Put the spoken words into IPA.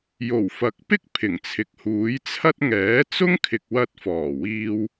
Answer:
j o˨˩ w f ɐ˨˥ k̚ p ɪ˥ k̚ pʰ ɪ˨˩ ŋ t͡sʰ ɪ˨ k̚ h uː˨˥ j t͡sʰ ɐ˥ t̚ ŋ ɛː˨˥ t͡s ʊ˥ ŋ kʰ ɪ˨ k̚ w ɐ˧ t̚ f ɔː˨˩ w iː˧ w

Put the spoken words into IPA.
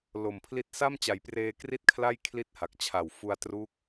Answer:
l o˨˩ m pʰ l i˦˥ t̚ s a˥˩ m t͡ɕ a˨˩ j p r eː˧ k r i˥˩ t̚ kʰ l a˥˩ j kʰ l i˥˩ t̚ h a˨˩ k̚ t͡ɕʰ a˨˩ w f u˧ a̯ t r u˦˥ k̚

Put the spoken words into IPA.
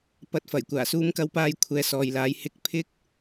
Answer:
p ɐ˧ t̚ f ɐ˨˩ j kʷ aː˨˩ s uː˧ m k ɐ˧ w p aː˧ j kʷʰ ɛː˨˧ s ɔː˨ j l aː˨˥ j h ɪ˥ k̚ pʰ ɪ˥ k̚

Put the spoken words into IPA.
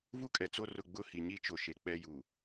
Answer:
v u˦ kʼ ɛ˨ t͡s o˦ r ʊ˦˨ ɡ͡b ʊ˦˨ h i˨ ɲ i˦ t͡ʃ o˨ ʃ e˨ k͡p ɛ˦ j u˨

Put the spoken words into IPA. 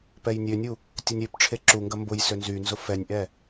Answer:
p ɛ j nʲ ø nʲ u | tʲ ɐ nʲ ø p ʈ͡ʂʰ e ǁ u ŋ ɡ ɐ m b ʊ j s ø n z y n z ʊ f ɛ nʲ ʔ ɛ

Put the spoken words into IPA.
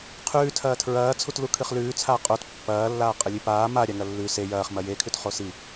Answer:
qʰ ʉː tʰ ɐː tʰ ɹ ɐː t͡sʰ u t l u kʰ ɨ χ l ʉː t͡sʰ aː qʼ o t pː ɐː lː aː qʼ ɐ lʲ ʉ p aː m a ɾʲ a ŋ ɐ lː ʉ s e j ɐː χ m ɐ j e kʰ ʉ t χ o s i

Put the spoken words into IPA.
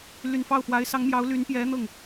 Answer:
l y˨˩ n f ɑ˥˩ ʊ̯ f w a˧˥ ɪ̯ s ɑ˧˥ ŋ m j ɑ˧˥ ʊ̯ l y˧˥ n p j ɛ˧˥ n̪ ɤ˥˩ ŋ

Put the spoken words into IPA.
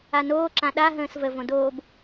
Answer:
a n oː ǁ ã ɗ a ɦ ə̃ː s v ə v õ d oː b

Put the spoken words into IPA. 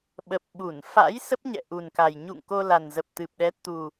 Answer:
ɓ ə˨˩ p̚ ɓ u˧˩ n f a̰˧˥ j s ə˦˥ p̚ ɲ ɛ̰˧˨ ʔ u˨˩ n k a˨˩ j ɲ ṵ˧˨ ŋ k o˧ l a˨˩ n z ə˨˩ p̚ t̪ ɨ˨˩ p̚ ɗ ɛ˨˦ t̪ u˨˩

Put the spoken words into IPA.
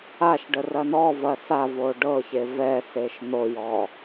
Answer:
a ʃ ɖ ə r ɐ n ɔ v ɐ s a v o ɖ ɤ ç e v ɛ s e ʃ n̪ o j ɔ

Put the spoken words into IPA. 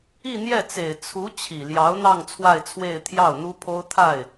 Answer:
i˥˧ n̪ j ɛ˥˩ t͡s e˨˩ ɪ̯ t͡sʰ u˧˥ t͡ɕʰ i˨˩ l j ɑ˧˥ ʊ̯ n̪ ɑ˥˧ ŋ t͡sʰ w a˥˧ ɪ̯ t͡sʰ w e˥˧ ɪ̯ t̪ʰ j ɑ˥˩ ʊ̯ n̪ u˥ pʰ o˥ ʊ̯ t̪ʰ a˥˩ ɪ̯

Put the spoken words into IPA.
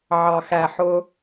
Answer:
ʕ ɑ˨ x æ˨ ħ ʊ˦

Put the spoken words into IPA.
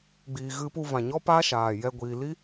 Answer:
ɡ͡b iː˨ ɣ ɨ˧ p u˧ v ã˨ ɲ ɔ˦ p a˦ ʃ aː˨ j ɛ˧ ɡʷ iː˨ l i˦

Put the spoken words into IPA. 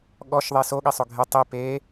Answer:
ɠ ɔ ʃ ðˤ e s o ɠ i sˤ o ɡʱ e tˤ i p e

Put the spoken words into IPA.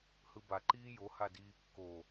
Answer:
h ɯ b a ǃ iː j o h a d iː kː o

